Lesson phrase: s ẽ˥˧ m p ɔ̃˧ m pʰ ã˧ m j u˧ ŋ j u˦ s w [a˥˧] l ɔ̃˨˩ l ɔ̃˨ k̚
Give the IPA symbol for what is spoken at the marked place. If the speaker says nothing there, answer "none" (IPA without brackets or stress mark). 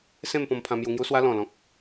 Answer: a˦